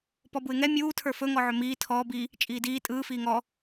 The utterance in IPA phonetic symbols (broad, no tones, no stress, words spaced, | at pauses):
pɔbuɪ̯ŋɛ mʲuː tʰə˞fɵ ŋɔʕɵmiː tʰɔːb i | t͡ʃʼiːdiː tʼɯː fiːŋɔ